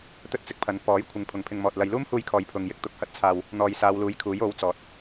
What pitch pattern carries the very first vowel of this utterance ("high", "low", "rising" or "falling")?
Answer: high